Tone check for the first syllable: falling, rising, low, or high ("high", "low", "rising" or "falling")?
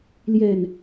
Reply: low